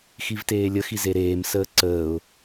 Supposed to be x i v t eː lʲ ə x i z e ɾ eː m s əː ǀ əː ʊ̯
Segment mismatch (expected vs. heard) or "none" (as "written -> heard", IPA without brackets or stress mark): none